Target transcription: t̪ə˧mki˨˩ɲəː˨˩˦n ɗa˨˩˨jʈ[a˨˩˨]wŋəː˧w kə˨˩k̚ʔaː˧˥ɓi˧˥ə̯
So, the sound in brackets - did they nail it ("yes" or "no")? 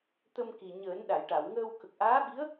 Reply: yes